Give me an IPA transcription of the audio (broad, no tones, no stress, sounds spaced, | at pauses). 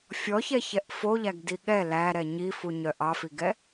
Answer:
fʲ ɔ ç ɛ ç ɛ ʔ f o ʎ æ ɡ d i ɠ ɛ l æ ɾ ɛ ɲ i f u ɲ œ ʔ ɑ f i ɡ ɛ